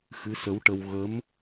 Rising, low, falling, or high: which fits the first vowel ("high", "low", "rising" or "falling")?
rising